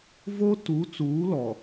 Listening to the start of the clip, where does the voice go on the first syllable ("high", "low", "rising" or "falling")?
high